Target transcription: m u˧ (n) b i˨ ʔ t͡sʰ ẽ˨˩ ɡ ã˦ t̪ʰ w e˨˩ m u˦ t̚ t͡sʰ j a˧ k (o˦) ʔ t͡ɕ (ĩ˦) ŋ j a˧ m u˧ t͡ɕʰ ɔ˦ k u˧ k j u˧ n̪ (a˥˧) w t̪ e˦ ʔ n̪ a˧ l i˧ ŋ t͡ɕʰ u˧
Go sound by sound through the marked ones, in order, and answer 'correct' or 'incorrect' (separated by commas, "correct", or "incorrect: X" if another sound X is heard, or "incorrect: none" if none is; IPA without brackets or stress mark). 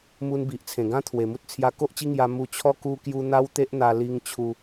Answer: correct, correct, incorrect: i˦, incorrect: a˦